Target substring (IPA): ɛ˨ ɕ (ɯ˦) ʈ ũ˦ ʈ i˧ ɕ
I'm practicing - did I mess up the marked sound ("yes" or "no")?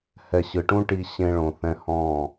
yes